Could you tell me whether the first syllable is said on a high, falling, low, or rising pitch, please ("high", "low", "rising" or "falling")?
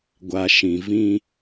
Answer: low